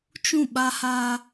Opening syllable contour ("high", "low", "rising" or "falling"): falling